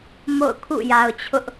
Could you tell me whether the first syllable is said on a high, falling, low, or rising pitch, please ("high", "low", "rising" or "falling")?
falling